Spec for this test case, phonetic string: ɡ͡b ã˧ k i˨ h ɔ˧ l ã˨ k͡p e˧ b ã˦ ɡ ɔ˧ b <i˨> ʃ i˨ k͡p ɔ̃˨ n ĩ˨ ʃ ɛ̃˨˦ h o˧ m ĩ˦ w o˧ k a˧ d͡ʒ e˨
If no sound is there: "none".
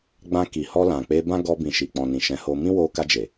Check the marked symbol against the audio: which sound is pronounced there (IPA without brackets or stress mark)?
ĩ˨